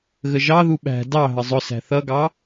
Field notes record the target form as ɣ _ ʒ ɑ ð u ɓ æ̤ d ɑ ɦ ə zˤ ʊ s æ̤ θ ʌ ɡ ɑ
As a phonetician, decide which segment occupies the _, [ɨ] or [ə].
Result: ə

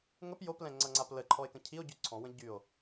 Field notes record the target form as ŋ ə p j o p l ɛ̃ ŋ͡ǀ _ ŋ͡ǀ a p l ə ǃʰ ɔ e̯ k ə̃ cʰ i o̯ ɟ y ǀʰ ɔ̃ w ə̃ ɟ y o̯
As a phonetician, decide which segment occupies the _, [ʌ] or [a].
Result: ʌ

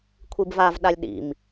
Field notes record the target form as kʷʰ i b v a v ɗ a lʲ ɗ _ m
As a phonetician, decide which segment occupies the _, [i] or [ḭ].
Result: ḭ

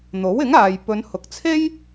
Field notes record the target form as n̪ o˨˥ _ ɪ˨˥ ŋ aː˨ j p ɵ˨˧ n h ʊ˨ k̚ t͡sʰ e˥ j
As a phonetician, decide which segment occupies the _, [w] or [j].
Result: w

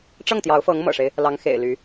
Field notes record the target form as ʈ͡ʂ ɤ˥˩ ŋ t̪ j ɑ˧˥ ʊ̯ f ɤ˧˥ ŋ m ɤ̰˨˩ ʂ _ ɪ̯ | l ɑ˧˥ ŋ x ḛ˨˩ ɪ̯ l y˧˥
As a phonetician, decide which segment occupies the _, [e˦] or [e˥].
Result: e˦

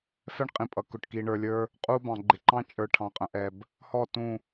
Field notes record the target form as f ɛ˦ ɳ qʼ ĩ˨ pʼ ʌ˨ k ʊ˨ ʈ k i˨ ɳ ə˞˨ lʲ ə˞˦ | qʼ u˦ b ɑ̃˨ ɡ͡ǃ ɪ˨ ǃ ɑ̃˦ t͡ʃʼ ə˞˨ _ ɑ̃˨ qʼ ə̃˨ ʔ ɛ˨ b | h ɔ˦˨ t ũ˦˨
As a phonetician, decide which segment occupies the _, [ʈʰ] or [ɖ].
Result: ʈʰ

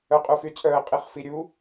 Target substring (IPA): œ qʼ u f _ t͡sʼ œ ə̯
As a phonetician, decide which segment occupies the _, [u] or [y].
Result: y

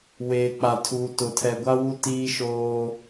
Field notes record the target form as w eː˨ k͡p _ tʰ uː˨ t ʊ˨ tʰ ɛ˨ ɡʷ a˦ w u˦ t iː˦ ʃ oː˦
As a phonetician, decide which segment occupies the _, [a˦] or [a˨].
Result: a˨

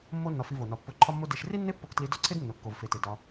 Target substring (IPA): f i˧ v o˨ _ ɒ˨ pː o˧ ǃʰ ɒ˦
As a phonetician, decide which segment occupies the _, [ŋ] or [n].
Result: n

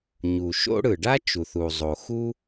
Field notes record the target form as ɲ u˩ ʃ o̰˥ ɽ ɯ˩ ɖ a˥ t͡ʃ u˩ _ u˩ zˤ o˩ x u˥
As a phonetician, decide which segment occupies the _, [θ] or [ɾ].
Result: θ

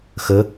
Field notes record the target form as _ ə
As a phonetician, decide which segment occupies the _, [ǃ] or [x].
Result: x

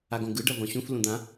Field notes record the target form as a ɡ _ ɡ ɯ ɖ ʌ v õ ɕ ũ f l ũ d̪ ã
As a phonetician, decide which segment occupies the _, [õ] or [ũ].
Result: õ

